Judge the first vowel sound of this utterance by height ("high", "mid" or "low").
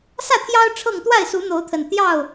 low